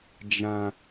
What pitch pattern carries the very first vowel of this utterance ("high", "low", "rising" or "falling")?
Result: high